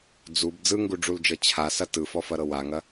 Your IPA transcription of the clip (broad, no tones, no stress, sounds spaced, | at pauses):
d͡z u b d͡z ɯ ŋ ɡ u ɖ͡ʐ u l d͡ʒ ɤ t͡ɕʰ a s ɐ t ɯ f ɔ f ɐ ɾ ɤ w a ŋ ɐ